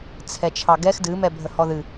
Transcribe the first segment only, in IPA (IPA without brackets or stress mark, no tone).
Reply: t͡sʰ